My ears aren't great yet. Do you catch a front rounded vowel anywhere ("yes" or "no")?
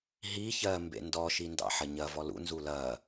no